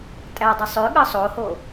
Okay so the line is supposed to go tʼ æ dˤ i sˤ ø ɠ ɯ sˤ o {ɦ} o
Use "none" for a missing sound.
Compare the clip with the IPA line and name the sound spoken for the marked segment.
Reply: h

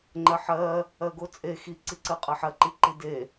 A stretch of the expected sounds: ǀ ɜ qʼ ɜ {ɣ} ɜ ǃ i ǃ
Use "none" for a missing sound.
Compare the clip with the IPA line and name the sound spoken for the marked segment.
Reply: ħ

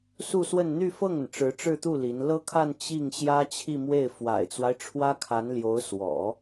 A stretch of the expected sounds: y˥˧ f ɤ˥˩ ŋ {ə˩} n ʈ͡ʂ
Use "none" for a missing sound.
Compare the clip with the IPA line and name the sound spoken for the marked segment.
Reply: ə˩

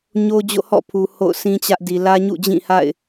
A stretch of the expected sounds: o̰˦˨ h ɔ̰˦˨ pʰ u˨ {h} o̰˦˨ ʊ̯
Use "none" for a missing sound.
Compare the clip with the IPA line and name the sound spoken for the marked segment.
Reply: h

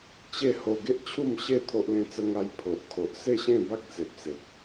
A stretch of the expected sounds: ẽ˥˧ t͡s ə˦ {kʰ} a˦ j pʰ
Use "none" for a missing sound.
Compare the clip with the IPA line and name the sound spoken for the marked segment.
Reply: ŋ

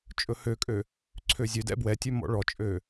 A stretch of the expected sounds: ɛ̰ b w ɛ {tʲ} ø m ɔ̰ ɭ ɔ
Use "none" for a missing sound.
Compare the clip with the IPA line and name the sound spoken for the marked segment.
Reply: tʲ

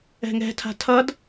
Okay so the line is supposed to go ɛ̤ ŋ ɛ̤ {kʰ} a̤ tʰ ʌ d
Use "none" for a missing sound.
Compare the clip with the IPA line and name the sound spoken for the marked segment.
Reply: tʰ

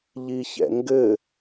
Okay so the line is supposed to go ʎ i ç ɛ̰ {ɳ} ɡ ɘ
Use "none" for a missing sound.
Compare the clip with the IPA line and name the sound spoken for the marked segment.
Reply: ŋ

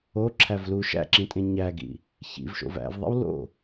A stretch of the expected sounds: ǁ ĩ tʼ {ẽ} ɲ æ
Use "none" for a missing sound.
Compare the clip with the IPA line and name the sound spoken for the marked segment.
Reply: ẽ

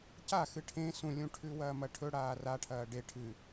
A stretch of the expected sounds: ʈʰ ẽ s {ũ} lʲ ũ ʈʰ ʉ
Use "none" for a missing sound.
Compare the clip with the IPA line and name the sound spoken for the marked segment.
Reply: ũ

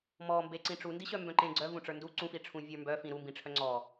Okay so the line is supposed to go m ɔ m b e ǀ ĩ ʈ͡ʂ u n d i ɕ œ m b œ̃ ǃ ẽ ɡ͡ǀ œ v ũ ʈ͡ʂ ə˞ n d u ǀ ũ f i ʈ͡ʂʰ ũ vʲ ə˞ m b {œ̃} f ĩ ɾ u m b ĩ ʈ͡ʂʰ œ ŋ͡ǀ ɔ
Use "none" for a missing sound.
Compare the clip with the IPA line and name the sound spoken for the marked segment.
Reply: œ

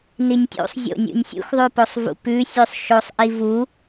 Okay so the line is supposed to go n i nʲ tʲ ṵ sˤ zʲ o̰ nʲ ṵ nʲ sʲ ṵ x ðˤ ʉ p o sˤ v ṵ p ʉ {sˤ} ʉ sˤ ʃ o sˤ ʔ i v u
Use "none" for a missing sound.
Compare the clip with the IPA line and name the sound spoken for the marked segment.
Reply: sʲ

